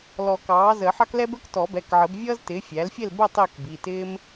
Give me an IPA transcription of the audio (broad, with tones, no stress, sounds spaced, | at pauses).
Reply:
l ɔ˨˩˦ k ɑː˩˥ z əː˨˩˦ ħ ɑ˥ k l ɛ˥ b ə˞˥ k t ɔ˨˩˦ b ɛ˩˧˩ k ʕ ə˨˩˦ b vʲ ʌː˥ z t ɪː˩˥ fʲ æ˩˥ l fʲ ɛ˥˨ l b ə˥˨ tˤ ɪː˥˨ k b i˩˧˩ t ɪː˥ m